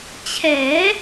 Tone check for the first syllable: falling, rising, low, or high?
rising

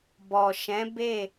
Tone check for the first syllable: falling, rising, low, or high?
low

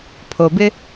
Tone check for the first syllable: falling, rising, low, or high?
low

